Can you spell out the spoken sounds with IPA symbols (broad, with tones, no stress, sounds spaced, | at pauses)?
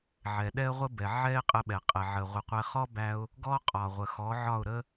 ʕ ɛ˩ ɗ ɛ˥ ə̯ ʁʷ ə˥ b ɛ˩ ʕ ɛ˥ ɪ̯ qʼ ə˧ ɓ ɛ˩ qʼ ɛ˩ ʕ ə˩ ʁʷ ɪ˩˥ qʷ ɛ˧ χ ɔ˥ b æ˧ ʊ̯ | ɡ ɔ˥ qʼ ɒ˩ ʁʷ ə˩ x ɔ˩˥ ʕ ɒ˥˩ ʊ̯ ɾ ə˥